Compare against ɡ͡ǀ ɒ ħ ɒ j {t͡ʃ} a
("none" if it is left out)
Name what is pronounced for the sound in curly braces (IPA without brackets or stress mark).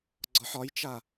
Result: t͡ʃ